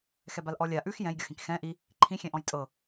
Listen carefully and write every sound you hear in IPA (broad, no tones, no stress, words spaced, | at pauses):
xɛbalʔɔlʲa ʔʉx jɛ̃jɡʲɔxĩk xɛ̃ ʔi | ǃʰĩ xʲɛ̃ʔɔ̃jtʼɤ